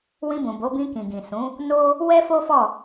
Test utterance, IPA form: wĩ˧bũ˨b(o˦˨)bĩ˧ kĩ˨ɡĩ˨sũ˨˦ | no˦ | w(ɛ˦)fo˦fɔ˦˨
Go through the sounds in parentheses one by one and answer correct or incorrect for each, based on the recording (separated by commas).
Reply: incorrect, correct